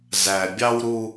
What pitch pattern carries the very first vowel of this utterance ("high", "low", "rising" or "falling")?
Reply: low